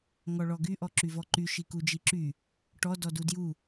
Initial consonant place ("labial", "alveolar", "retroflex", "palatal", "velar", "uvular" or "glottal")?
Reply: velar